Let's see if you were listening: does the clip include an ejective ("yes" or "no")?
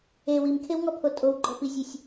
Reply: yes